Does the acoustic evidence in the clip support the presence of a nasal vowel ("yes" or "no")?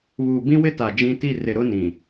yes